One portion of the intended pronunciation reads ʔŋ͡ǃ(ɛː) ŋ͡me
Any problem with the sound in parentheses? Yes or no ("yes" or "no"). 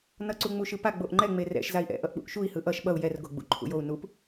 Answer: yes